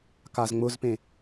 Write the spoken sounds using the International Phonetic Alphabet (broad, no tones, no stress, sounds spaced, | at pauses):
k a z ŋ͡m ʊ z p ẽ